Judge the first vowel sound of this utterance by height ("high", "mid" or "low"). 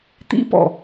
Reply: high